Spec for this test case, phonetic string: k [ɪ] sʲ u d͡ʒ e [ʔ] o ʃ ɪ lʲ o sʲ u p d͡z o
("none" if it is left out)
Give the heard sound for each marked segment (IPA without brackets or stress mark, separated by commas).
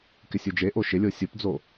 ɪ, ʔ